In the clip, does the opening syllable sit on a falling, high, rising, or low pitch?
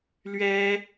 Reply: high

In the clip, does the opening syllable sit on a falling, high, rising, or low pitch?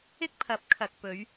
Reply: high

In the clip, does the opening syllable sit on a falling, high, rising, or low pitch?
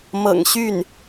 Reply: low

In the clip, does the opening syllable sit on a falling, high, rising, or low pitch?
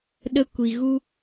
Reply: high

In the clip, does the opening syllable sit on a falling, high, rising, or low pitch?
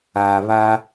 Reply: low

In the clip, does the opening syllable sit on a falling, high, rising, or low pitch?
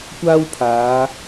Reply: high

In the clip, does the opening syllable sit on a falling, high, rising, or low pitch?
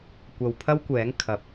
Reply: low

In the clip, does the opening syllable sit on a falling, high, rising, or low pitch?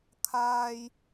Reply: high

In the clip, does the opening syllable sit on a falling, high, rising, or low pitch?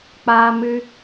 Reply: high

